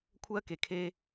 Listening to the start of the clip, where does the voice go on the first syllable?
high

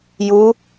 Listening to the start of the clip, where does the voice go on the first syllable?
rising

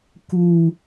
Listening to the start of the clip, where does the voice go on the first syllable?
high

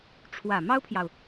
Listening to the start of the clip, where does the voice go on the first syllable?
low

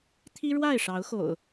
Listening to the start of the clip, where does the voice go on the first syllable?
high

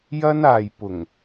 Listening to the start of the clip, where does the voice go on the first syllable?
high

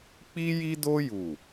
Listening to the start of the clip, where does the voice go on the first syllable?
high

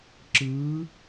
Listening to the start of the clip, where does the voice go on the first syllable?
rising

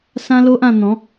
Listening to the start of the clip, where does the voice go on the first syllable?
high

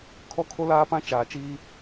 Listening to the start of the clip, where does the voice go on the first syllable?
high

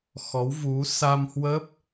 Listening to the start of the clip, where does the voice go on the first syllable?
rising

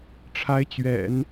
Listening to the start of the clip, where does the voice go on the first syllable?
rising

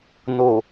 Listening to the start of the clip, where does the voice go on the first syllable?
low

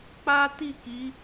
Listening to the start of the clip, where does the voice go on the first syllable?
high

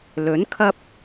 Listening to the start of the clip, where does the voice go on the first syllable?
rising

